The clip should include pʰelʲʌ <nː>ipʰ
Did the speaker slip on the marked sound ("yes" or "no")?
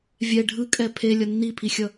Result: no